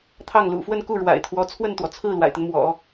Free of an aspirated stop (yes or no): no